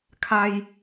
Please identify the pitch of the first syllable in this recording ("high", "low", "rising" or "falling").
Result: low